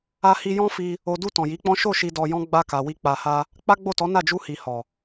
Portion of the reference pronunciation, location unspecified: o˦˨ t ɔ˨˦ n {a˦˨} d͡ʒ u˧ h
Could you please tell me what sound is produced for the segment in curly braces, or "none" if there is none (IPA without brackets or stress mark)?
a˦˨